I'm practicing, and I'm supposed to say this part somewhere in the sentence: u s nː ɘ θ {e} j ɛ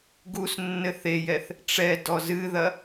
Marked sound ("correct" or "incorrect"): correct